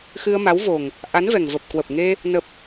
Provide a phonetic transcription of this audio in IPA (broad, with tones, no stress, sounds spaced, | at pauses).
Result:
x ɨ˧ ə̯ m a˨˦ w v o˨˩ ŋ | ʔ a˨˦ n v ɛ˨˩ ŋ v ə˨˩ p̚ k w ə˨˩ p̚ ŋ e˧ | n ə˨˩ p̚